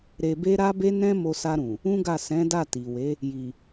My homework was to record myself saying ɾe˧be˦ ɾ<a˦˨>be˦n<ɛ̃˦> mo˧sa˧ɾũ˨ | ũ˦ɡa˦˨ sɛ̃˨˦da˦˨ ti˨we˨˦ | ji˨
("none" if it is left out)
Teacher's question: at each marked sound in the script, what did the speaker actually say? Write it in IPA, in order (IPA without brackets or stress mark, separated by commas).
a˦, ɛ̃˦